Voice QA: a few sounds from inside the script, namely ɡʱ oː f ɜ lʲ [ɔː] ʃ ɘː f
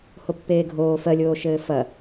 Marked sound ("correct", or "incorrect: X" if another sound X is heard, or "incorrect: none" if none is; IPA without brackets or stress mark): incorrect: oː